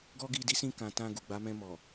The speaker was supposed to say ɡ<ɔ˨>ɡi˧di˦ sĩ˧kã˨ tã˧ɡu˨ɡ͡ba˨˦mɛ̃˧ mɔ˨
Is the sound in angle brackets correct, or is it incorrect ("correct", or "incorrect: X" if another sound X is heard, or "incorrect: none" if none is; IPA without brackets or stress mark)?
incorrect: ɔ˦